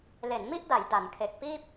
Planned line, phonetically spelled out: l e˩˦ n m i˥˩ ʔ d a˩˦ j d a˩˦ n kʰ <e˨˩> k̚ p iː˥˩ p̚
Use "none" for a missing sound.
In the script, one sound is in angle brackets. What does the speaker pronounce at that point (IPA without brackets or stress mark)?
e˨˩